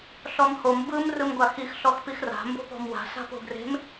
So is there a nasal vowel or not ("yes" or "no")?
no